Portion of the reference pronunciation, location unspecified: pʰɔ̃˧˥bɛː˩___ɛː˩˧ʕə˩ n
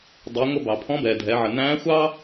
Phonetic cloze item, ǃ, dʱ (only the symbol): dʱ